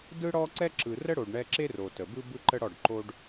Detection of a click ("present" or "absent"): present